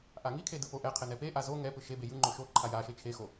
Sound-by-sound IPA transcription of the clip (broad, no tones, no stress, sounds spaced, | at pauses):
ʔ a ŋ i kʰ e d ɯ p o ʔ ɛ qʰ e n ɛ p e ʔ a z o ŋ ɛ p ɯ ʃ e b e j ɯ ŋ͡ǃ o ʃ o ǃʰ a j a ʃ e t͡ʃʰ e x o